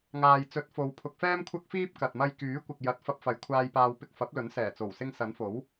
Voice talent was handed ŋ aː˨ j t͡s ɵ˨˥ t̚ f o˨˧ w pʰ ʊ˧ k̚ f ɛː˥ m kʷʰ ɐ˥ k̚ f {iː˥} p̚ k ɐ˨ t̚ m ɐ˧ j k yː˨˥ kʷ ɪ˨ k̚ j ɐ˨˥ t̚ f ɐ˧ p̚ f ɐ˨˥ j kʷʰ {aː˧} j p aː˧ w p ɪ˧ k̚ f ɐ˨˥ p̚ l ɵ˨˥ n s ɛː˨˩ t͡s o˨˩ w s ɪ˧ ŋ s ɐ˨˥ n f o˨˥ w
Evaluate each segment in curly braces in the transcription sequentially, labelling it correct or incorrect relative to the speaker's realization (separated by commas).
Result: correct, correct